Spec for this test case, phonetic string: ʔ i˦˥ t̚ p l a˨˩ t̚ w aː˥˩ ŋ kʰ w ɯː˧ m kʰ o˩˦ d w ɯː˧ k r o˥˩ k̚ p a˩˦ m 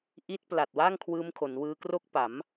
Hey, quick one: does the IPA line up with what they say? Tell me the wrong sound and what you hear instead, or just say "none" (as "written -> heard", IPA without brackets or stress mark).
d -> n